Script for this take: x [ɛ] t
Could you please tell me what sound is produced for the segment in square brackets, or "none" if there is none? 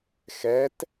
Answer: ɛ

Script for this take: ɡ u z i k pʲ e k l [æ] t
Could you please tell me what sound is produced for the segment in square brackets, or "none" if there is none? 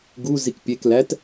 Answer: æ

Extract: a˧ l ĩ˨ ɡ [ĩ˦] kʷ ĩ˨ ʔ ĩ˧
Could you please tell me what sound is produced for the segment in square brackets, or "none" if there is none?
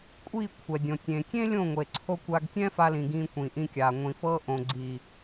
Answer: ĩ˧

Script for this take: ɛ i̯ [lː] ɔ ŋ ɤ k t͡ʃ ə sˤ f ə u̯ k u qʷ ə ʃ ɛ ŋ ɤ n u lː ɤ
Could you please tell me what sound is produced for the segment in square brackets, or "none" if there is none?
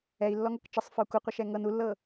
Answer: lː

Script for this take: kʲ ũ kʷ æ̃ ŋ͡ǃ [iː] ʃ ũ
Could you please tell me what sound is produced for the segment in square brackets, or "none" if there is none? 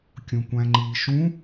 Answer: iː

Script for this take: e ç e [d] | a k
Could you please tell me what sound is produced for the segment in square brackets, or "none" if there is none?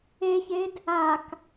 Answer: d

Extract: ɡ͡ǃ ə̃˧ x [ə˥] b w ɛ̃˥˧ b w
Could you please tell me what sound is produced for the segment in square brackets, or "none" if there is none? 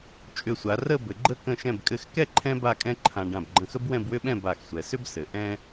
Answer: ə˥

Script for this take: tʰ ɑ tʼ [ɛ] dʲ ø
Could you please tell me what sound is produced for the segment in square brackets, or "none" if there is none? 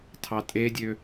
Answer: e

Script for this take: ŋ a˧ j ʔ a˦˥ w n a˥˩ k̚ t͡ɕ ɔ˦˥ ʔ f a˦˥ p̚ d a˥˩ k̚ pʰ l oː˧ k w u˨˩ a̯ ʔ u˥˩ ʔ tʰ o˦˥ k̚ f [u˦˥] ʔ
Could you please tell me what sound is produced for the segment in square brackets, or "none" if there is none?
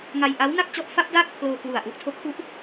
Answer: u˥˩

